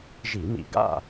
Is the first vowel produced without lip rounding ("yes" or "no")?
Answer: yes